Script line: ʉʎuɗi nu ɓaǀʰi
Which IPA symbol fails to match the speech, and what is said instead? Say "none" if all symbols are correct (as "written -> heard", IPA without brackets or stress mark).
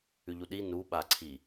none